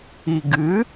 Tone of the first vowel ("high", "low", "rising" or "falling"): low